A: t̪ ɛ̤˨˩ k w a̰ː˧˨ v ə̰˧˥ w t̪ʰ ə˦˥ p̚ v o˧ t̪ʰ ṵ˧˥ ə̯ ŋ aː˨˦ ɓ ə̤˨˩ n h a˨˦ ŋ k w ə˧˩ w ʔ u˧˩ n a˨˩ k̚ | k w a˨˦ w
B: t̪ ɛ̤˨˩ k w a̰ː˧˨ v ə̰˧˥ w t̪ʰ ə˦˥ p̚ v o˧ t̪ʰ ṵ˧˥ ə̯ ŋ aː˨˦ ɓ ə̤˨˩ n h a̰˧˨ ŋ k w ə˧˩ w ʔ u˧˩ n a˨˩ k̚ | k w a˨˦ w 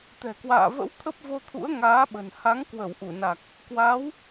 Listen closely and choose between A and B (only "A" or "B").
A